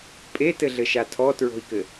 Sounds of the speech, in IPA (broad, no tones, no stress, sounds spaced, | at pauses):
pʼ e t ɘ ɮ ɘ ʃ a tʰ ɔ t ɹ o̤ i̯ k ɘ